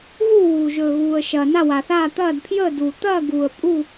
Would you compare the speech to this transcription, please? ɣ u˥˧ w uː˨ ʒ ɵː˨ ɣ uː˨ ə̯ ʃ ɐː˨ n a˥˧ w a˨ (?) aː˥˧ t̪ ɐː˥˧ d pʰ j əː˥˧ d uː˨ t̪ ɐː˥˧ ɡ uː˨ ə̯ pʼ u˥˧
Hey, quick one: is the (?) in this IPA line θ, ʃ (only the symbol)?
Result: θ